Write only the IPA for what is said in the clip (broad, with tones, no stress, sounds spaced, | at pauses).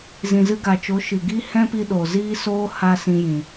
z ĩ˨ z ɨ˧ ɡ a˨ t͡ʃ o˨˦ ʃ ɨ˨ ɡ i˦ h ɛ̃˦ p i˧ ɗ o˨ z iː˦ s oː˦ h a˦ s ĩ˧ j ĩ˨